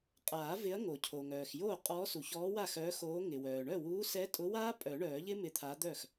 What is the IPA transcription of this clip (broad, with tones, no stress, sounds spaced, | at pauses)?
qʼ aː˨˩˦ v ɪ˨˥ ɐ̯ ŋ o˩ cʰ o˩ ŋ œː˩ x j oː˥˩ qʼ ɔː˨˥ s u˩ ç ɔː˨˥ w a˥˩ x œː˨˥ x oː˨˥ ŋ ɪ˩ w œː˩ ɳ œ˥˩ w uː˨˥ s ɛ˨˥ tʼ ʊ˨˥ w aː˦˥ pʼ œ˨˩˦ ɳ œː˨˩˦ ʎ ɪ˦˥ m ɪ˨˥ t̪ʰ a˨˥ d̪ œ˥˩ x